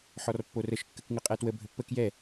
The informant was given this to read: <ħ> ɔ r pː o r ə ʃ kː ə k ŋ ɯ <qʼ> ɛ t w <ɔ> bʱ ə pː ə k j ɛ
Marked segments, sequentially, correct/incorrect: correct, correct, incorrect: ə

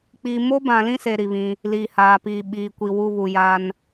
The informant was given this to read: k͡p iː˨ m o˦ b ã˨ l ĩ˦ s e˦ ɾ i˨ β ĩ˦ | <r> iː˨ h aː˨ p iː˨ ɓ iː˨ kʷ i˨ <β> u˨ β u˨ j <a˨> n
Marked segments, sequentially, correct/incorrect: incorrect: l, incorrect: w, incorrect: a˦

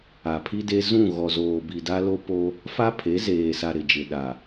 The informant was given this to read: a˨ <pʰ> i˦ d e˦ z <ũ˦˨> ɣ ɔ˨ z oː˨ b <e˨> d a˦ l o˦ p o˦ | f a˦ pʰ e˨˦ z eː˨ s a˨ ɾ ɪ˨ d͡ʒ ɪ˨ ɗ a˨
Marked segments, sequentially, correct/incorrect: correct, correct, incorrect: i˨

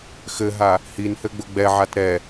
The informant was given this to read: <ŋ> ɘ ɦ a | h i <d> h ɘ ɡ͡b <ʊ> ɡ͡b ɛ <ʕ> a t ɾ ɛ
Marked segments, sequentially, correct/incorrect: incorrect: x, incorrect: n, correct, correct

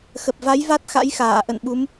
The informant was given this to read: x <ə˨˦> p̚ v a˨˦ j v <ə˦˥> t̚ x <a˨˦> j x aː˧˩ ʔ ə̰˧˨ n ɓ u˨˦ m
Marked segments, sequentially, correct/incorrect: incorrect: ə˨˩, incorrect: a˦˥, incorrect: a̰˧˥

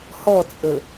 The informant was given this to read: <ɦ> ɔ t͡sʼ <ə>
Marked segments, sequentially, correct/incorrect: incorrect: h, correct

